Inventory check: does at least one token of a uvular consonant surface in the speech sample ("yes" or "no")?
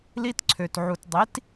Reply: no